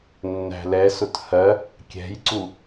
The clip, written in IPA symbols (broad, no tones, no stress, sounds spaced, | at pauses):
nː æ̤ l ɛ s ʊ t h ɜ | kʲ ɛ̤ j ǀ u